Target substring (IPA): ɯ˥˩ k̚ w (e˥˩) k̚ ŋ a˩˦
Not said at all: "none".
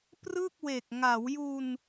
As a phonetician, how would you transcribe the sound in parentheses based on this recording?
e˨˩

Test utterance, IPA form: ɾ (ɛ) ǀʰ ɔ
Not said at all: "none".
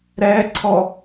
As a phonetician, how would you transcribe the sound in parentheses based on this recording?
ɛ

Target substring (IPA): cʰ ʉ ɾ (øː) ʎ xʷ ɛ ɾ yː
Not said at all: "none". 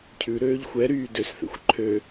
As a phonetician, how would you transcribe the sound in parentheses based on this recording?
øː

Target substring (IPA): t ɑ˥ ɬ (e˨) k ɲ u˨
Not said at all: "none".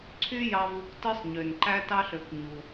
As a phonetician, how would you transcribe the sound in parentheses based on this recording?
ø˨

